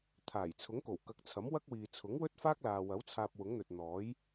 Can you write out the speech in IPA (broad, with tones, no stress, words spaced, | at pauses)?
t̪ʰaː˨˩jt͡sʰʊ˨˥ŋko˨˩w kɐ˨˥k̚t͡sʰɐ˨˥mwɐ˥k̚wiː˨ t͡sʰʊ˨˥ŋwɵ˥t̚faː˥k̚laː˨ wɐ˨˥w t͡sʰaː˧p̚wʊ˨˥ŋn̪ɵ˨t̚ n̪ɔː˨˥j